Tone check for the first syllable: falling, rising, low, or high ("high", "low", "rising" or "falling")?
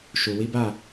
low